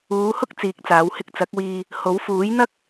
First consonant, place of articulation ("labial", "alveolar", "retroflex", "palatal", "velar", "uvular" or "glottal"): glottal